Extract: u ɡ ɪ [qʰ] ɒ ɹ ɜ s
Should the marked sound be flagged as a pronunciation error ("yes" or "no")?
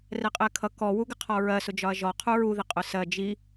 no